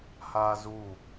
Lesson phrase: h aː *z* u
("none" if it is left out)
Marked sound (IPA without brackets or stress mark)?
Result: z